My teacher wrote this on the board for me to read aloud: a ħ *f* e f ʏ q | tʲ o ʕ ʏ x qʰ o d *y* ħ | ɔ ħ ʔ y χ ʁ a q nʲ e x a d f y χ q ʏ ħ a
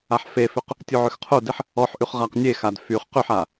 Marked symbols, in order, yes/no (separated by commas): yes, no